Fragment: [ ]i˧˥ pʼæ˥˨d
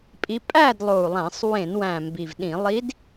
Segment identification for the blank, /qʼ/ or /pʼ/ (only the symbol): pʼ